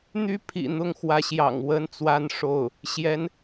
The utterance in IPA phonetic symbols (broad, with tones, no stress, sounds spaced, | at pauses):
n̪ y˥ pʰ ḭ˨˩ n̪ ʊ˥˩ ŋ x w ä˧˥ ɕ j ɑ̰˨˩ ŋ w ə˥ n t͡s w a˥˧ n ʂ o˥˩ ʊ̯ | ɕ j ɛ˧˥ n